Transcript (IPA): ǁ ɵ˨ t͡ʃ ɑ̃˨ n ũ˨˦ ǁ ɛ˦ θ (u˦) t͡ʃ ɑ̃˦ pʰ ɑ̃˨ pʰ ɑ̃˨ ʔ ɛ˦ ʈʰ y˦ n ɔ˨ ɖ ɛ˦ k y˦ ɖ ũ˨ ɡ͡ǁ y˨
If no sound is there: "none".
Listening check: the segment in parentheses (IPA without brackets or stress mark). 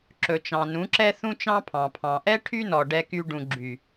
ũ˦